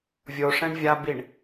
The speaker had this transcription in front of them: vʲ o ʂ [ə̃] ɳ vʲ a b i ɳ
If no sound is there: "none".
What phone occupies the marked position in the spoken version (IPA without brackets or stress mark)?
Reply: ɛ̃